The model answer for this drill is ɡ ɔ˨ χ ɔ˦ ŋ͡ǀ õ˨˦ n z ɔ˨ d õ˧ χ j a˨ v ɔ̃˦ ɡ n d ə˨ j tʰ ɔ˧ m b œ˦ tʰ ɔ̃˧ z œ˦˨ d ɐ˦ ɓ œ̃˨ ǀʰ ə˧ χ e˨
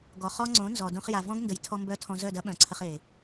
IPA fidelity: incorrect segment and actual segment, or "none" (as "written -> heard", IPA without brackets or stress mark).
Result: none